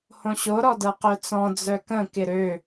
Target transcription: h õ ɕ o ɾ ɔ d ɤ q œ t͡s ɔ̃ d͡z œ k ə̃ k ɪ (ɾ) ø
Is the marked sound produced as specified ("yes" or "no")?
yes